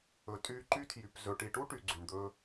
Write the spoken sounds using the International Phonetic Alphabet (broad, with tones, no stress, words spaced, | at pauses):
ɵ˨tʼy˦ ǃy˦tʰjy˨pzɵ˨ ʈi˨ʈu˦ ʈy˨ɡ͡ǀy˨ɳd̪ɵ˦